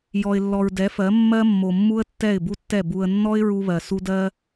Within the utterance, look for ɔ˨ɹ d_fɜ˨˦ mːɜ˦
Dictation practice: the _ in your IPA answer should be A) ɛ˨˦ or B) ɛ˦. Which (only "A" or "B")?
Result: A